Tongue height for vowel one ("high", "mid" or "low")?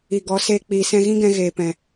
high